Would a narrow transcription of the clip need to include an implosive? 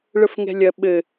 yes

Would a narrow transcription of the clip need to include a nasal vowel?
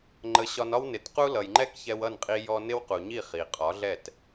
no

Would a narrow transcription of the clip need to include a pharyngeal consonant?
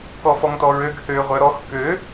no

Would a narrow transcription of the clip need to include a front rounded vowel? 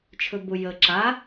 no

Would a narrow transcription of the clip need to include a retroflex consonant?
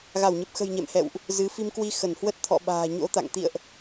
no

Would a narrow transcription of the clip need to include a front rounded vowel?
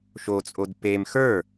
no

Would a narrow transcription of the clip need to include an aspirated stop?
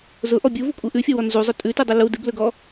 no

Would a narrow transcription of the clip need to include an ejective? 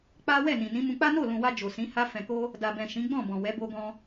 no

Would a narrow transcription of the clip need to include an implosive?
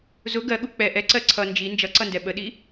yes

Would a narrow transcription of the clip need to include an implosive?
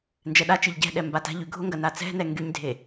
yes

